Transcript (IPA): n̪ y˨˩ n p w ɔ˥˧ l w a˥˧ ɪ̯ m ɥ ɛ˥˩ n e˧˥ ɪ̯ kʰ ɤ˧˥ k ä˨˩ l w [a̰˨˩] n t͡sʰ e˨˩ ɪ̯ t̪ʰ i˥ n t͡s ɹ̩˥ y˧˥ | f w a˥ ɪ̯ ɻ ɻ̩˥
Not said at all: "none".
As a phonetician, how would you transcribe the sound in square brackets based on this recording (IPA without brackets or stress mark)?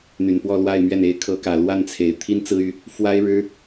a˥˩